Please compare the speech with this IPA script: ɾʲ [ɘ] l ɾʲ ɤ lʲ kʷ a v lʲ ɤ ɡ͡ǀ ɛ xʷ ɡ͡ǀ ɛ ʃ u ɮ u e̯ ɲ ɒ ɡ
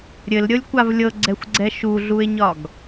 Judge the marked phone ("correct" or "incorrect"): correct